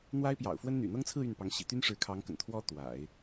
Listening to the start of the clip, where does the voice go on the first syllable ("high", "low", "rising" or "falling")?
high